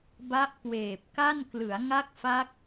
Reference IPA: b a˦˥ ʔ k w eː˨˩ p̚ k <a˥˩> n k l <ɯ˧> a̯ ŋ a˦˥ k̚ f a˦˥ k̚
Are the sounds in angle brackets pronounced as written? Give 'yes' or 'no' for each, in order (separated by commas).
yes, no